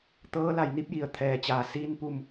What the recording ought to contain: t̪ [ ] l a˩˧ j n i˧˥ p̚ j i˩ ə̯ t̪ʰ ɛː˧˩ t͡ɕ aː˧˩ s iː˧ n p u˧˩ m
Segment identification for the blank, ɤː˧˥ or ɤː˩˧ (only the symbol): ɤː˧˥